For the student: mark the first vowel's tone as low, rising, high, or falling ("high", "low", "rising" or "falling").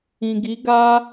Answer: low